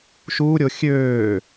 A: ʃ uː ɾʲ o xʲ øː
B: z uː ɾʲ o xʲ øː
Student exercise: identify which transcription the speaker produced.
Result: A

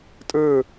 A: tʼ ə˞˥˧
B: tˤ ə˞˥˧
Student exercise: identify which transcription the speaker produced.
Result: A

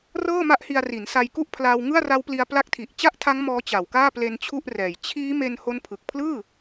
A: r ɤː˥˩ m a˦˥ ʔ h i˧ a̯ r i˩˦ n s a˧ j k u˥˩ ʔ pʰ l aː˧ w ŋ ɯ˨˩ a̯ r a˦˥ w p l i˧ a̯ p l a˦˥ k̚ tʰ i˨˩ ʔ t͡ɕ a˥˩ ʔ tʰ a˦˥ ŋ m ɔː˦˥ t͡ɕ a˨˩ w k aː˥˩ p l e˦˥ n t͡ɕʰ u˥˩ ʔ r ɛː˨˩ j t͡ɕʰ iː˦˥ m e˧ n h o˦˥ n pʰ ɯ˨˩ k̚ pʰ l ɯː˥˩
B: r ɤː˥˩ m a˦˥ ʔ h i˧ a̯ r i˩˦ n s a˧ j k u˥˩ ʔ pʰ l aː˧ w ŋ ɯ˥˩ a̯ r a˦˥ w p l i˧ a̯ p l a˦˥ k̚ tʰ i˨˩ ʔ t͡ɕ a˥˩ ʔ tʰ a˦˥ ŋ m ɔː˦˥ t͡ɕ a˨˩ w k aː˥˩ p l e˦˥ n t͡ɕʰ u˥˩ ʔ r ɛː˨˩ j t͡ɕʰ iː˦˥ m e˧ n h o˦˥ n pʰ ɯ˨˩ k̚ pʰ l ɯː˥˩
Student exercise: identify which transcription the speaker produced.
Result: B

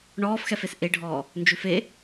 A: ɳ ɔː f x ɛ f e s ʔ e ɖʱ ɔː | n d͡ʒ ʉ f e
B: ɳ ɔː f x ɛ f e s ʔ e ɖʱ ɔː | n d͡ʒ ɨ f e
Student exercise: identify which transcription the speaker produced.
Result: A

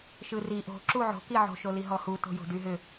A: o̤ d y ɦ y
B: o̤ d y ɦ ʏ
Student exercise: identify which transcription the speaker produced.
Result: B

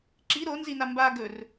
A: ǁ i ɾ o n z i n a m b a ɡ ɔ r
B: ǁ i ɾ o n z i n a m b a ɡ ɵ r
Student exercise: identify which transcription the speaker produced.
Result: B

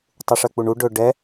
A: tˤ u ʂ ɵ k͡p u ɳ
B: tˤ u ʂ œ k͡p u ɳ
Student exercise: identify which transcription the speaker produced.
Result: B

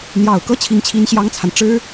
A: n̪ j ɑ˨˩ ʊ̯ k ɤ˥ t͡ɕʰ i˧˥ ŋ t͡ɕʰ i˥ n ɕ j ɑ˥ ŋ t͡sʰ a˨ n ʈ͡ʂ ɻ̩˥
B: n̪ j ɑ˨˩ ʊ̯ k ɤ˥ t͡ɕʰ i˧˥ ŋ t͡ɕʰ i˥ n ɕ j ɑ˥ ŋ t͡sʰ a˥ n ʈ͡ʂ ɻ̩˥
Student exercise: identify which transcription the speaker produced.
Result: A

